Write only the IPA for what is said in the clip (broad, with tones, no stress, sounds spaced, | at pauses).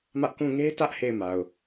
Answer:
m ä˦ ʔ k ũ˦˨ ŋ e˦ t ä˦ ʔ h e˦˨ ɪ̯ m a˨ ʊ̯